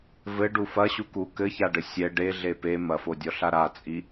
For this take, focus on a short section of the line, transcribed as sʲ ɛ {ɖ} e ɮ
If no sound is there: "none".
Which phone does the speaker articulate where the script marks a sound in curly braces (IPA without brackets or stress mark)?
ɖ